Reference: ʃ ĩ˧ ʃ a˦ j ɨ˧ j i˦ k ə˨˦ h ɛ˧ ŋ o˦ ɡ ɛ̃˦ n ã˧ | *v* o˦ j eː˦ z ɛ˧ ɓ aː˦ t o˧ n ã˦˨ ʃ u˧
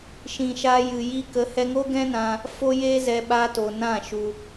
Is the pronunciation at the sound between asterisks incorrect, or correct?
incorrect: f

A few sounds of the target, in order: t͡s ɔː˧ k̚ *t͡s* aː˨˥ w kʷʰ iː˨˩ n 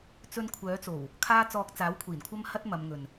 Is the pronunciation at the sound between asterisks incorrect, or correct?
correct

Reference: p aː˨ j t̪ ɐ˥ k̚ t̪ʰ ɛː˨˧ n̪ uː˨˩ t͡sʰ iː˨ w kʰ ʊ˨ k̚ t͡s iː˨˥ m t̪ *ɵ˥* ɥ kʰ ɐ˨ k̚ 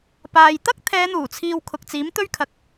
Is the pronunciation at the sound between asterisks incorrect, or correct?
correct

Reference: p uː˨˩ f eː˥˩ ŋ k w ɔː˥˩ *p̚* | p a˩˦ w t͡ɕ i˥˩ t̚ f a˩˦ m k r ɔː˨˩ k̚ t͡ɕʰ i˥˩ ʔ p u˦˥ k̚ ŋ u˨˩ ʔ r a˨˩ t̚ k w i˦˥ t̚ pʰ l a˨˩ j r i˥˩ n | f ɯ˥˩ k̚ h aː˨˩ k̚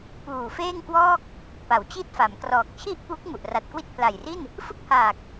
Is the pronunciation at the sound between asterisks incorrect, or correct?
incorrect: k̚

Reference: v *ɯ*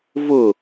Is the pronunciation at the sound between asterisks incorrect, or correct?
incorrect: ʊ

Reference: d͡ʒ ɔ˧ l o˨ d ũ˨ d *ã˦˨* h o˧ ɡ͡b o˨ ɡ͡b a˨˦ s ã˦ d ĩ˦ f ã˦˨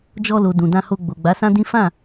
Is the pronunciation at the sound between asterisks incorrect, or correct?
incorrect: ã˧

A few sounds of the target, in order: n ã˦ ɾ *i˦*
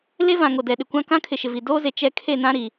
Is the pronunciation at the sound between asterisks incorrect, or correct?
incorrect: i˨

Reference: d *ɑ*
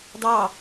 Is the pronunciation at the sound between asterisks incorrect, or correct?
correct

